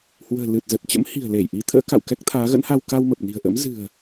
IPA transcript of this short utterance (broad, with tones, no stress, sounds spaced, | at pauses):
h w ə̤ː˨˩ l ɨ˨˩ t̚ z ə˨˩ t̚ t͡ɕ ə̰˧˥ m h i̤˨˩ ə̯ l e˧˩ j ʔ i˨˦ t̪ʰ ə̰ː˧˥ k a̰˧˨ w k ɛ˦˥ k̚ t̪ʰ aː˨˦ ɣ ə̰˧˥ n h a˧ w k a˧ w m ə˨˩ p̚ n i̤˨˩ ə̯ ʔ ə̰˧˥ m z ɨ̤˨˩ ə̯